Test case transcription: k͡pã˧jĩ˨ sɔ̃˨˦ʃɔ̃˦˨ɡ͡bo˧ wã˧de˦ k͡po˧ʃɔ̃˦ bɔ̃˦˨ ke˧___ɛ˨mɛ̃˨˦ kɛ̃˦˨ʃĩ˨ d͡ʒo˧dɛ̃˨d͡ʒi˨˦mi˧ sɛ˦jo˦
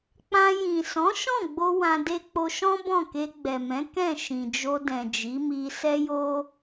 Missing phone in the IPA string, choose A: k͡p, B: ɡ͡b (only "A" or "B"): B